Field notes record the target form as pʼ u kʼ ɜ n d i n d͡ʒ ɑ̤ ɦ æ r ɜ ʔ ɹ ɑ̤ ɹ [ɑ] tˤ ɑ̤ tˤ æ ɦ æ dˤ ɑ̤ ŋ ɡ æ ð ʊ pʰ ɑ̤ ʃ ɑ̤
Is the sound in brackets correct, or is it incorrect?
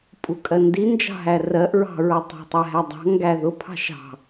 incorrect: ʌ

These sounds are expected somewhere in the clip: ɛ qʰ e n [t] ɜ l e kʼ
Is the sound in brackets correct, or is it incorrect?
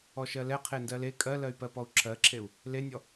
incorrect: d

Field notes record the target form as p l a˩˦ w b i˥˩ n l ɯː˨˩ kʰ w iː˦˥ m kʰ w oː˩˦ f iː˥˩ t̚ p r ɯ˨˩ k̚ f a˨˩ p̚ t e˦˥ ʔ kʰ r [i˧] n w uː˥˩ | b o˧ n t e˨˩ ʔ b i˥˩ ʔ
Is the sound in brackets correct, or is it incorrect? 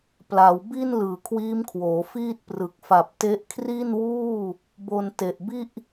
incorrect: i˥˩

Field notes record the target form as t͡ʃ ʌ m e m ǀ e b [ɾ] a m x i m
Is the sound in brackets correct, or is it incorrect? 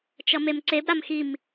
correct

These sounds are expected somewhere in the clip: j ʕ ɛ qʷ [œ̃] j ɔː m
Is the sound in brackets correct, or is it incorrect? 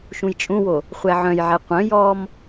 correct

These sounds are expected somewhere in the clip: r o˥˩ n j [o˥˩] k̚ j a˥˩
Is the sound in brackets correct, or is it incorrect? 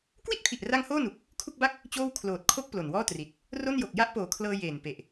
incorrect: o˨˩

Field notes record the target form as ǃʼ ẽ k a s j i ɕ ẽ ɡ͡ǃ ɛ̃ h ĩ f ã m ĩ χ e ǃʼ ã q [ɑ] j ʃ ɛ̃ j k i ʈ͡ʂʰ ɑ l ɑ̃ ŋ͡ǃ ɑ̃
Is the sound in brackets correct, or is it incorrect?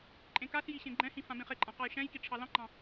correct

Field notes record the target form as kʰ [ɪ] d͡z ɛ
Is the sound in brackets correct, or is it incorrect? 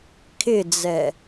correct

